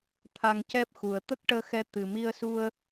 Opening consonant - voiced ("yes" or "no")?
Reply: no